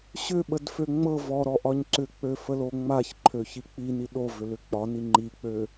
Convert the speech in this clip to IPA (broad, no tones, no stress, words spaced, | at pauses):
ɕʏɓədfø ŋ͡mɤ vɔɾɔʔɒɲ ǀʏk͡pøfəlo ŋ͡maçǃʰøçi k͡pini ɗovʏlʏ k͡pɒni ŋ͡ǃik͡pø